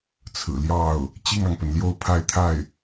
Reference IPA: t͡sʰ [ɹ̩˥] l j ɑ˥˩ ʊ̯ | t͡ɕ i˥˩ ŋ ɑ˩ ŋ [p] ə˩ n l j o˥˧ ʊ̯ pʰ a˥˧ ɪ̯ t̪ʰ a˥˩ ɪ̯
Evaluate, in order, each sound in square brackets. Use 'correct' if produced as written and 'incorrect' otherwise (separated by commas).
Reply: incorrect, correct